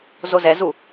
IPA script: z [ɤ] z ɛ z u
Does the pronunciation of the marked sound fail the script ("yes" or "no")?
yes